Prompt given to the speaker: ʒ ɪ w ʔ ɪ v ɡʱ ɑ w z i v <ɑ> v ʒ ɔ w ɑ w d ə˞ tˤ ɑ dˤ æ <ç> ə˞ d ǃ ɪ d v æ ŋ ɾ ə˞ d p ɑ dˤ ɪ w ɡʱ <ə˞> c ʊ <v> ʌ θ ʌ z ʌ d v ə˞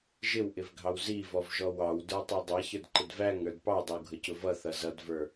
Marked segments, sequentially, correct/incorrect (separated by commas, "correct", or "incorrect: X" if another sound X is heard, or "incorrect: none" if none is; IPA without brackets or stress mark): incorrect: ɔ, correct, incorrect: ə, correct